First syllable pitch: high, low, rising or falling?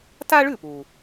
high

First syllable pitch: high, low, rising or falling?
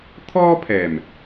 high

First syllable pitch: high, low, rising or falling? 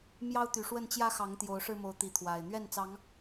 high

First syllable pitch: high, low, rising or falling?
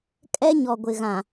high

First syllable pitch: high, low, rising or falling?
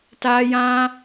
high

